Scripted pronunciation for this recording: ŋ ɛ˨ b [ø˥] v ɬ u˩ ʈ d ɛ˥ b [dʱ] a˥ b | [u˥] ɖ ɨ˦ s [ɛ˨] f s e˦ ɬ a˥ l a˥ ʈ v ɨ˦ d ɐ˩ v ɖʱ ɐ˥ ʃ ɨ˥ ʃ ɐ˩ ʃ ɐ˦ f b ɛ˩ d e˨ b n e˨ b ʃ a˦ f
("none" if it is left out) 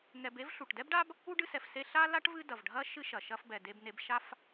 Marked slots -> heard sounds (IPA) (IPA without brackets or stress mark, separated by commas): e˥, ɖ, u˥, ɛ˨